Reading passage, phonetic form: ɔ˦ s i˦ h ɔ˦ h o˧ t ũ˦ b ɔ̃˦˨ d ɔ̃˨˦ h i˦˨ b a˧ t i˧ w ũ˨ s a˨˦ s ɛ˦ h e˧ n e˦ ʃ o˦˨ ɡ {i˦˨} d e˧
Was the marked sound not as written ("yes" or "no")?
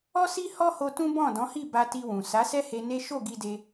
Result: yes